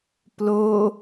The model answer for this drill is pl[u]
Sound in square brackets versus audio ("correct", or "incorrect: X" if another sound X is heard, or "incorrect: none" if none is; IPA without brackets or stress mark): incorrect: o